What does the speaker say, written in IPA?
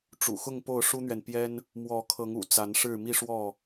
ʈ͡ʂ ṵ˨˩ x ʊ˥˨ ŋ p o˥˨ ʊ̯ ʂ u˦ n̪ ɥ ɛ˨ n p j ɛ˦ n | m w ɔ˨˦ kʰ ɤ˨˦ ŋ ṵ˨˩ t͡s a˨˦ n ʂ ɻ̩˥˨ m i˥˨ ʂ w ɔ˥˨

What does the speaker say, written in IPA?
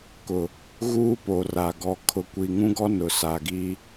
k ʊ˨ | ɣ uː˦ p o˨ r a˨ ɡ ɔ˨ kʰ ʊ˨ kʷ i˨ ŋ ũ˦ ɡ ɔ˦ n ʊ˨ s a˨ ɡ i˦

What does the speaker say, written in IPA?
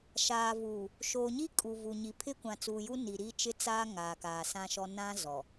ʃ aː˨ v uː˨ | ʃ oː˨ ɲ i˦ kʼ u˨ v u˨ ɲ i˨˦ pʰ ɪ˦ kʷ ã˨ t͡s uː˨ j u˦ n i˨ ɾ i˦ t͡ʃ ɪ˦ t͡s aː˦ ŋ aː˨ k aː˨ s ã˦ ʃ ɔ˦ n ã˦ z ɔ˨

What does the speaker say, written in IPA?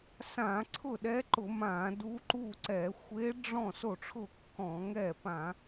s ã˧˩˧ ǀʰ ʊ˥˩ ɗ ɛ˧˥ ǃ ʊ˧˩˧ m ã˧˩˧ d u˧˥ ǃ u˥˩ ǀ ɛ˧˩˧ xʷ e˧˥ ɖ͡ʐ ɔ̃˥˩ s o˥˩ ʈ͡ʂʰ ʊ˥˩ kː ɔ̃˧˩˧ ŋ ɛ˥˩ p ã˧˩˧

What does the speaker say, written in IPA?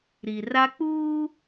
ɾ i˨ r a˦ k͡p uː˦

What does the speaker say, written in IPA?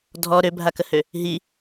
dʱ ɔ ɾ ø bʱ a k ə h ø | ɦ i

